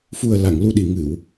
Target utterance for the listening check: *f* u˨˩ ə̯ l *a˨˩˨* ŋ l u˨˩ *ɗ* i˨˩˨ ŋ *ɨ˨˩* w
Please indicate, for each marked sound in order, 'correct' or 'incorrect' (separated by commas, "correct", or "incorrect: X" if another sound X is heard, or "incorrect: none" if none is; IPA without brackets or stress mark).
correct, correct, correct, incorrect: ɨ˨˩˨